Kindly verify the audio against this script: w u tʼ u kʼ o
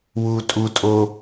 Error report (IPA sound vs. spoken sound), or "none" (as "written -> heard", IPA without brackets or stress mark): kʼ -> tʼ